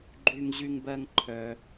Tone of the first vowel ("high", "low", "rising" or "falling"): high